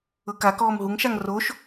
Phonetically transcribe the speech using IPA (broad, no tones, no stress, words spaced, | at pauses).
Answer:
ɤkakɔːm ɦuŋʃaŋ roʃ